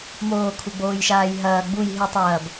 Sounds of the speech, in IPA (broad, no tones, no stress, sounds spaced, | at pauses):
m oː kʰ u ɡ͡b oː j ʃ aː j ɦ ɐː ɡ͡b u j ɦ ɨ tˤ ɐː b